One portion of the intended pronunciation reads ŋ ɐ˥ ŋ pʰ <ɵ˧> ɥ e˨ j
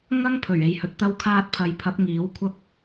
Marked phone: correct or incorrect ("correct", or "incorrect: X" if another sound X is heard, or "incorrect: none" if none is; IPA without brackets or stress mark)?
incorrect: ɵ˨˩